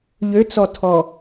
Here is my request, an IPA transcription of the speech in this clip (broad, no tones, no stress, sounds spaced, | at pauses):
ʎ ø t͡s ɔ tʰ ɔ